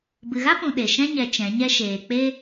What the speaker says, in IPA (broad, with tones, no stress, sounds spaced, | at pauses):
b ɨ˨ ɣ a˦ p ũ˨ ɗ e˨ ʃ ɛ̃˦ ɲ ɛ˨ t͡ʃ ɛ̃˨˦ ɲ ɛ˦ ʃ eː˨ k͡p e˦